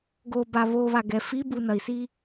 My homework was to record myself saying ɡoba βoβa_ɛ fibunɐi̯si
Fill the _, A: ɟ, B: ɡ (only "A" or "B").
B